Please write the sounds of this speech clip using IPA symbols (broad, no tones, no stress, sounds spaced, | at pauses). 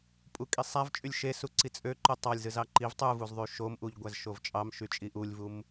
pʼ u kʼ i sˤ æ v t͡ʃʼ y lʲ ʃ e s u ǀ i t͡sʼ ø ǃ u tˤ ɑ lʲ z ɯ z ɑ ǃ i v tˤ ɯ v u z ðˤ y ʃ o m ʔ u ʎ ɡʷ æ z ʃ o v t͡ʃʼ ɑ m ʃ y t͡ʃʼ i ʔ u lʲ v u m